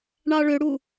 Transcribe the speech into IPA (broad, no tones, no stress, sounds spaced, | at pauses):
ɳ ɑ ɭ ø ɽ u